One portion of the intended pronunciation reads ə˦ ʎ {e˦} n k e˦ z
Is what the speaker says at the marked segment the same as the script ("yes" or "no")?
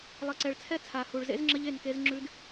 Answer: no